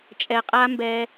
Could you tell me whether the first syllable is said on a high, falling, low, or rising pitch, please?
low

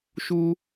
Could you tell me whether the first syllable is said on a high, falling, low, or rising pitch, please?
high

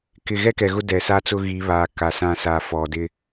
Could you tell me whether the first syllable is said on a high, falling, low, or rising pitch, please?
low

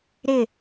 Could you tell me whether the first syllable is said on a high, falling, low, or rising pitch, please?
falling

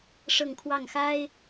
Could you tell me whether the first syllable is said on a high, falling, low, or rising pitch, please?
falling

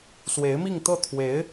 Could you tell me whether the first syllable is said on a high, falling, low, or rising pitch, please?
rising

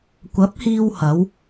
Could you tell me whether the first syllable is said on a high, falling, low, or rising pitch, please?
rising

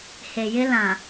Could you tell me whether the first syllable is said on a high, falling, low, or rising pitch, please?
low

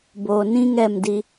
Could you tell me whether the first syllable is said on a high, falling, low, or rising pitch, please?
low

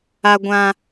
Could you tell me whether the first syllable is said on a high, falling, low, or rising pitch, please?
high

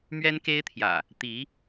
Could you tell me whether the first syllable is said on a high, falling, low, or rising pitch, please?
high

